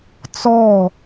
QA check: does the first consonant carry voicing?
no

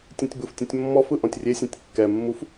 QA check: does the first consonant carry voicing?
no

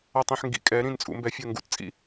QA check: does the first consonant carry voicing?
no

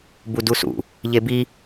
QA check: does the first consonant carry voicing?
yes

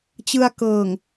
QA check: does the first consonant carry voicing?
no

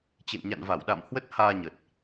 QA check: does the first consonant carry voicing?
no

